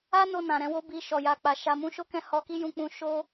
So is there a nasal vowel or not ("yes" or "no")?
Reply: yes